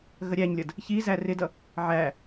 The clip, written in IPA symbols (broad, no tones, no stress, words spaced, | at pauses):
ɣəɾʲæɲlʲʌd | çi zærɪdʌ | ʕæ